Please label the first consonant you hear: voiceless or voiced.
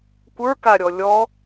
voiceless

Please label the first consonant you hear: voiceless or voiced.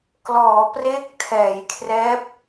voiceless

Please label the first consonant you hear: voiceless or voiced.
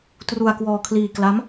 voiceless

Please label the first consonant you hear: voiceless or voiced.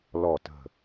voiced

